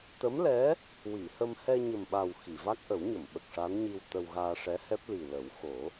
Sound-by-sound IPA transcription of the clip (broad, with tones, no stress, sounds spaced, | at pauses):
t̪ ə˧˥ m l ɛ˧˥ | w i˨˩˨ h ə˧ m h ɛ˧ ɲ ə˨˩ m ɓ a˨˩ w x i˨˩˨ v a˦˥ k̚ ʔ ə˨˩˦ w ɲ ə˨˩˨ m ɓ ə˨˩ k̚ ʂ a˧˥ n ɲ i˧ w t̪ ə˧ w ɣ aː˧ ʂ ɛ˧˥ h ɛ˦˥ p̚ l i˨˩ l ə˨˩˦ w x o˨˩˦